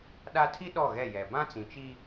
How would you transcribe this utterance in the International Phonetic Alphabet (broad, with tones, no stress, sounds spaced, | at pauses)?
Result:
ɗ a˦ tʰ i˦ ɗ ɔ˦˨ ɣ ɛ˦˨ j ɛ˨ b ã˦ t͡s ĩ˨ t͡ʃ i˦